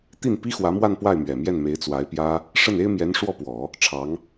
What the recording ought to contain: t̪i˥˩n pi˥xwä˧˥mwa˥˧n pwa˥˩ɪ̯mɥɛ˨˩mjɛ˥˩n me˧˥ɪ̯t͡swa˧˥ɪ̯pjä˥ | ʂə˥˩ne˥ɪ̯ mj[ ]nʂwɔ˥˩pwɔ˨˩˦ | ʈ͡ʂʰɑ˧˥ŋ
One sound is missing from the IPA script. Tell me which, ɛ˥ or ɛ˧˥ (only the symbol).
ɛ˧˥